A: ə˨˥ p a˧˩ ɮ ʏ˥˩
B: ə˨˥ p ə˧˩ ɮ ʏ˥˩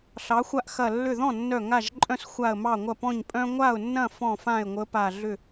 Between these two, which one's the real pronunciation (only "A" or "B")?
A